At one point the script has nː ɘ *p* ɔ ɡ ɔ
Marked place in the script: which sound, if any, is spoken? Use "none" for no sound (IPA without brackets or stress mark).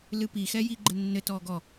t